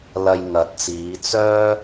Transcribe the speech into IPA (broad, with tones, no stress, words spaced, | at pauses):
lɐ˧j ŋɐ˨˥t̚t͡siː˨˧ t͡sœː˥